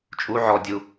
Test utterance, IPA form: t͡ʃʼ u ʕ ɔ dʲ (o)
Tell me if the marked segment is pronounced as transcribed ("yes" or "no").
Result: no